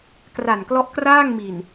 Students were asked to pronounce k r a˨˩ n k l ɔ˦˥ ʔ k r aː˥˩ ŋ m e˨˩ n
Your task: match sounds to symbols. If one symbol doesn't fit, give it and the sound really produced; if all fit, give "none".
e˨˩ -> i˨˩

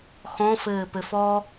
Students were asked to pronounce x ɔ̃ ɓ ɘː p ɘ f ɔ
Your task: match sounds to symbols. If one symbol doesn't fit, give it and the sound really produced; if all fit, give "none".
ɓ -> f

